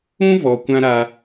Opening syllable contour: high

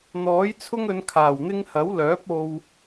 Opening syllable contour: rising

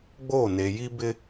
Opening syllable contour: falling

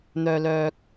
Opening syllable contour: low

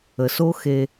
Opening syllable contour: low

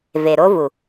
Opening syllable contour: low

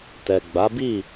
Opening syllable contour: low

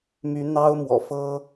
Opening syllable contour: rising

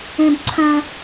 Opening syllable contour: high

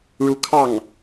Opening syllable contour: rising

